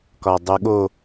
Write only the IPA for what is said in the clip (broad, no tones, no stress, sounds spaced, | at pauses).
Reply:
k ɒ dˤ u ɠ o